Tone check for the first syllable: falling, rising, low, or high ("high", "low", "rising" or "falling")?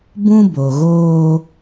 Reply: high